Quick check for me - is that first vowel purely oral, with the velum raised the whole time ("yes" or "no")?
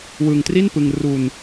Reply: yes